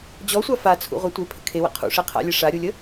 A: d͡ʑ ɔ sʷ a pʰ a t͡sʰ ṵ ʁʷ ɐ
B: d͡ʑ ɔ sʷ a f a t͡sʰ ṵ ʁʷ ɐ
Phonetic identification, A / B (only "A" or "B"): B